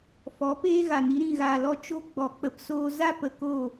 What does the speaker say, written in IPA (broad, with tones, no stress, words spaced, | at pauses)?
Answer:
fɔ˨˦ peː˦ɣa˨ni˦ɾĩ˦˨ ɣaː˧lɔ˦ t͡ʃo˦ ɡ͡bɔ˧k͡pə˧psoː˦ za˦pə˨ko˦˨